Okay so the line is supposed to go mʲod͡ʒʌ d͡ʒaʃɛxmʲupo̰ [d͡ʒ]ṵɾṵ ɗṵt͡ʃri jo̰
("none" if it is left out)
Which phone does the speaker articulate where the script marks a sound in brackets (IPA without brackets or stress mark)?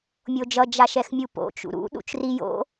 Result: t͡ʃ